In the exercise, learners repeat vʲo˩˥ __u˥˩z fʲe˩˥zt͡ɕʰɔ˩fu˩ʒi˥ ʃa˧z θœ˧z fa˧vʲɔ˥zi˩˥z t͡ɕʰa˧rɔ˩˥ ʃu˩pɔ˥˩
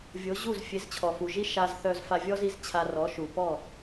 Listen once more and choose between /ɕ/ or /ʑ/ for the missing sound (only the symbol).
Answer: ʑ